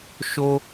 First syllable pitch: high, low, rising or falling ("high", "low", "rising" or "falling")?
high